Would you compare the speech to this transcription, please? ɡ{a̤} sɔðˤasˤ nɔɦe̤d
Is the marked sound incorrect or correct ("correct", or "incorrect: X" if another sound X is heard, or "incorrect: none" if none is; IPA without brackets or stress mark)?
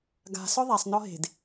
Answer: correct